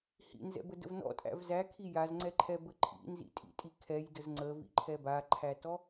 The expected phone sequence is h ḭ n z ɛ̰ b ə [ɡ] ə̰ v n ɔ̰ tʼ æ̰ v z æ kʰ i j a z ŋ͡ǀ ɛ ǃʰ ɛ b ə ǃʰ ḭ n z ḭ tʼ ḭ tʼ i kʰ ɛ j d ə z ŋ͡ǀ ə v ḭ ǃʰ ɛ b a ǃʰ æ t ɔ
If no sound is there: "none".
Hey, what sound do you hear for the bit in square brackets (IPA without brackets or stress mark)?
d